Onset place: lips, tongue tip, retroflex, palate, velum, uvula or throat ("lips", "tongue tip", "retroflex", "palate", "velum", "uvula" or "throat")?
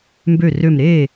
lips